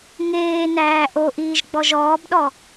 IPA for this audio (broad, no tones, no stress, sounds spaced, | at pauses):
ŋ eː n æː ʔ o ʔ iː ʒ ɡ͡b ɔ ʒ ɔː b ɗ ɔ